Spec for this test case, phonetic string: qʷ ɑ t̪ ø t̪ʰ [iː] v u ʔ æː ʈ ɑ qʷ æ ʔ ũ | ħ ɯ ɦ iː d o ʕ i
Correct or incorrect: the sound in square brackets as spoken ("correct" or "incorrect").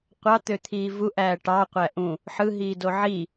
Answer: correct